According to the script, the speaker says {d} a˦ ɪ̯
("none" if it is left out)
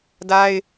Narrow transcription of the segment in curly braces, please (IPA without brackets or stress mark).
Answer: d